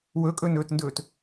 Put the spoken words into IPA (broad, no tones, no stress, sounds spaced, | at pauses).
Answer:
w ɵ kʼ ɵ n ɵː t n d ɵː t